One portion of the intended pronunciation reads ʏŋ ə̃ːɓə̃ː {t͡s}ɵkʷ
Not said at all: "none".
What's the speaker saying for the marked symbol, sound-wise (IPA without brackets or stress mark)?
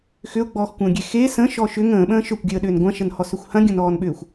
ʃ